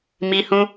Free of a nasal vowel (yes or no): no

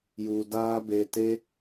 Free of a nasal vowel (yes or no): yes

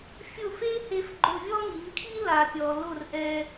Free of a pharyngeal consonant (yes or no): yes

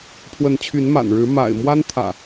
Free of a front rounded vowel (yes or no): no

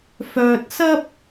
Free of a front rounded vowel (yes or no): no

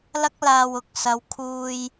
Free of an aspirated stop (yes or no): no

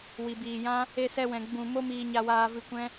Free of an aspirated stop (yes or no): yes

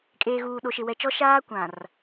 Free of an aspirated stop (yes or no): yes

